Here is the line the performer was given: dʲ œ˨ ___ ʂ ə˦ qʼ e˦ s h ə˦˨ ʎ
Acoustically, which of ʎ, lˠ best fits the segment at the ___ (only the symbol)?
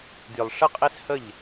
lˠ